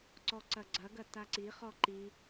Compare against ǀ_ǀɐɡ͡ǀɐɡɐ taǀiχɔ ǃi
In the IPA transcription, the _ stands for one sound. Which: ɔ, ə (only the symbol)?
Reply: ɔ